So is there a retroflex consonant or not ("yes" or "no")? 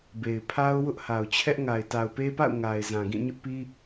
no